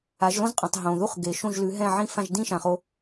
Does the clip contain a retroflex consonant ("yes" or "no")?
no